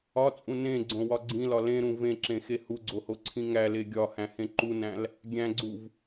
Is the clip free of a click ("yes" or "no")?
no